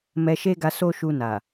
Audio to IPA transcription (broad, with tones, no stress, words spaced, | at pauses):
mɛ˧ʃe˦ɡa˧ so˦ʃu˧ na˨